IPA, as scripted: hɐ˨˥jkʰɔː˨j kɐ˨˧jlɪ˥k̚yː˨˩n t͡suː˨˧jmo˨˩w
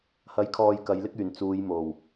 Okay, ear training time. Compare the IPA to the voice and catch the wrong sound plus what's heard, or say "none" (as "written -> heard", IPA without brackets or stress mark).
none